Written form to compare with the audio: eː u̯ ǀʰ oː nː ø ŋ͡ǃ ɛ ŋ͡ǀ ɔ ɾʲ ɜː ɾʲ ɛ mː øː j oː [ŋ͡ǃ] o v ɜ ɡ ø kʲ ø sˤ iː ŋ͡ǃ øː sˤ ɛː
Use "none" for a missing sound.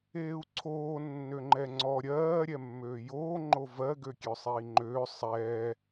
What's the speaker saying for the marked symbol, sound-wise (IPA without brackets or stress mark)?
ŋ͡ǃ